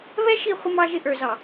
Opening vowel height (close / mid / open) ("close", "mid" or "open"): mid